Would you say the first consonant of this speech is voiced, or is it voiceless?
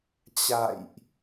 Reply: voiceless